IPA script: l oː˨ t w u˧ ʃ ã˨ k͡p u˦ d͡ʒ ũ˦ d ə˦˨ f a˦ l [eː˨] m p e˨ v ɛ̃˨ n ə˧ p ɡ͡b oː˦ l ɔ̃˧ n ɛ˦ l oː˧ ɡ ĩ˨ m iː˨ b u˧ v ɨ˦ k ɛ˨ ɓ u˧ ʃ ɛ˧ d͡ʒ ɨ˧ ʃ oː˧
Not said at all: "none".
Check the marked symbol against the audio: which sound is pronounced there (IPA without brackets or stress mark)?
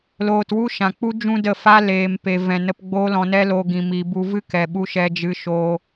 eː˨